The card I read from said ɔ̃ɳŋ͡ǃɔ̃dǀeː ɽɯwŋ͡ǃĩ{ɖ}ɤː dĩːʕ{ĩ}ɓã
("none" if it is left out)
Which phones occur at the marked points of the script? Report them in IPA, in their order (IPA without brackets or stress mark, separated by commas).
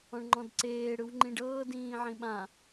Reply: ɖ, ĩ